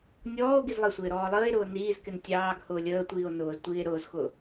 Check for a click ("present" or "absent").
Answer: absent